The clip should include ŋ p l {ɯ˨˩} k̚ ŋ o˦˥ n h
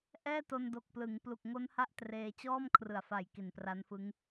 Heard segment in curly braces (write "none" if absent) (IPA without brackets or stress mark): u˨˩